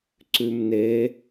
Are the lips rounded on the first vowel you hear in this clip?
yes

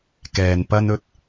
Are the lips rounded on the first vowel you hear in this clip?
no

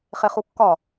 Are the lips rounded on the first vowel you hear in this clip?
no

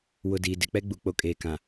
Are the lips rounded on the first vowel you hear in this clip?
yes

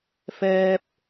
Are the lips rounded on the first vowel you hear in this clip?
no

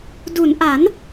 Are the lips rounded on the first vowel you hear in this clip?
yes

